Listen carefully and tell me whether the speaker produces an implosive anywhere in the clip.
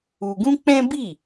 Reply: no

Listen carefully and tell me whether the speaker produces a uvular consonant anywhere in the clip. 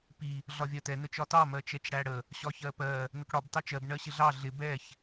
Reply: no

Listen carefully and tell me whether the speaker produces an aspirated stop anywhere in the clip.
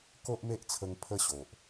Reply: yes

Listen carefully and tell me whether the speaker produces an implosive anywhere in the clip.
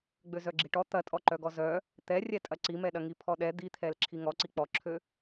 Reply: yes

